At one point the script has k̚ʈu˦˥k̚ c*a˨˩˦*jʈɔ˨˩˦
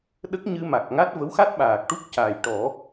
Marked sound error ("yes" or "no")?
yes